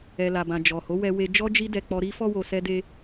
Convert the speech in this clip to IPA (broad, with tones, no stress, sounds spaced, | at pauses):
ɛ˨ l a˨ b ã˨ d͡ʒ ɔ˨ h o˨˦ w ɛ˧ w e˧ d͡ʒ ɔ˦ d͡ʒ i˦ d ɛ˧ k͡p ɔ˧ ɾ i˦ f ɔ˦ w o˧ s ɛ˦ d e˦